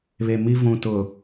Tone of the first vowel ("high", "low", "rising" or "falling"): low